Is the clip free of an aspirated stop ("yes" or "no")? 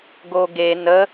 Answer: yes